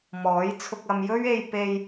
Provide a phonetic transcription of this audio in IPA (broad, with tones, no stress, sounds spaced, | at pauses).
m ɔː˨˥ j t͡sʰ ʊ˧ k̚ ɐ˧ m j ɵ˥ ɥ e˧ j p e˧ j